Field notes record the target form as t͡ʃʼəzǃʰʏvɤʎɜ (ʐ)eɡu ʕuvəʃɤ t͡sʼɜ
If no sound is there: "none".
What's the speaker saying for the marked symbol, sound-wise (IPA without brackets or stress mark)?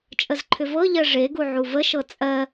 ʐ